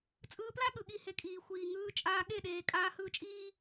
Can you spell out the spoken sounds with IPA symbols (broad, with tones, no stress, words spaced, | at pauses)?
t͡sʼɯː˧pla˦ ɠɯ˨ɠi˦˨he˧kʼiː˨ xʷiː˨ŋɯː˧ t͡ʃʼaː˧ɠe˦˨ɗeː˨ kʼaː˧hɯː˧t͡ʃʼiː˦